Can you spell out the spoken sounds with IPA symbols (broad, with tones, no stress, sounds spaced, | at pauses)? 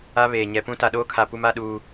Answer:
a˦ β eː˨ ɲ ɛ˨ p ũ˦ t a˨ ɗ oː˦ kʰ a˨ p u˦ m a˦ ɗ uː˦